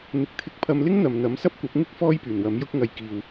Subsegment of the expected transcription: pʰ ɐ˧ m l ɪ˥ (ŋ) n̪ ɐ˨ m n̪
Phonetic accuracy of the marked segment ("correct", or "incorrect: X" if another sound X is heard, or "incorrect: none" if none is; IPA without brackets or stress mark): correct